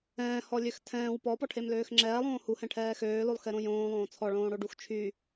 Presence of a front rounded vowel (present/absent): present